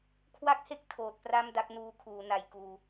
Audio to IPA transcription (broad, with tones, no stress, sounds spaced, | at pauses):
kʰ w a˦˥ k̚ h e˦˥ k̚ tʰ oː˨˩ t̚ p r a˥˩ m d a˥˩ k̚ n uː˧ kʰ uː˩˦ n a˨˩ j k uː˨˩